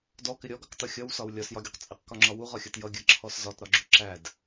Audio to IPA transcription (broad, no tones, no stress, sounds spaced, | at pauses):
d ɔ k ɪ ɾʲ ɔ ɡ ʌ q t ʌ xʲ ʌ w s ɒ w lʲ ɒ s j ɒ ɡʲ u q t͡sʼ ɪ q k ɒ ŋ͡ǁ ɒ w u ʁ ɒ xʲ ɜ t j ʌ ɡʲ ɜ ǁʰ ɔ s z ɒ t ɾ ɒ ɡ͡ǁ u ǁ æ d